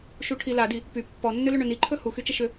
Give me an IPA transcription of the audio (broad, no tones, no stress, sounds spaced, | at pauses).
ʃ u ʈʰ i l a d i | p y pː ɔ nː ʏ l ɵ ɳ ɵ n i ǃʰ ɵ h u x y t͡ʃ ə ʃ ʏ